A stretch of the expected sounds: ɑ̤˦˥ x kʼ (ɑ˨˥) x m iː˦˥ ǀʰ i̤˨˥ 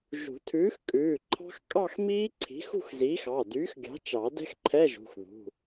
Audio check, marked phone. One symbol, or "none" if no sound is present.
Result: ɑ˥˧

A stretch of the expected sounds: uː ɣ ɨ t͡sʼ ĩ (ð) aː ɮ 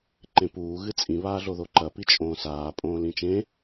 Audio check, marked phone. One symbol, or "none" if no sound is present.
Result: β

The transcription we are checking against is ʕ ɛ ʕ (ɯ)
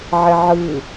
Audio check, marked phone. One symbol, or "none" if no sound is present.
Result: ɯ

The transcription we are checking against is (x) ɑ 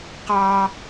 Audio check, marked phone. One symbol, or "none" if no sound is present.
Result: q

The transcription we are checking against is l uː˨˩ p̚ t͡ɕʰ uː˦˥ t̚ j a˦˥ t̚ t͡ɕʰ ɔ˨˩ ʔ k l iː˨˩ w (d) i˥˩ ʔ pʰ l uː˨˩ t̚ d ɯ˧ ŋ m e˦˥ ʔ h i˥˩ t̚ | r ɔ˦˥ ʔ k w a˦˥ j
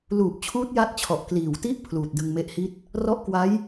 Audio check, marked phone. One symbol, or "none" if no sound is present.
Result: t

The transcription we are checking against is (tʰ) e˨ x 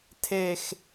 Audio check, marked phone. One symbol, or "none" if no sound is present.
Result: tʰ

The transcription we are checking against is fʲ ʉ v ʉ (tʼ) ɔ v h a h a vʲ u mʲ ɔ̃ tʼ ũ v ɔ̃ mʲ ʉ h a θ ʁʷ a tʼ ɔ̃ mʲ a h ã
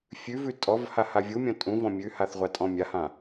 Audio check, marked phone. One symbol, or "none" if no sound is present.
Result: tʼ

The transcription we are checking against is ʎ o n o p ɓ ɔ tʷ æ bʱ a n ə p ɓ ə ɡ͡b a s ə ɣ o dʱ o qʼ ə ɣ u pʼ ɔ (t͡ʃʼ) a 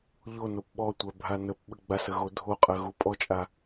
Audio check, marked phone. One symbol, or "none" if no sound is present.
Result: t͡ʃʼ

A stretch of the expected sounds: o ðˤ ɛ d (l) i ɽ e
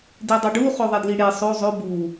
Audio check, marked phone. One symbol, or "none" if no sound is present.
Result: l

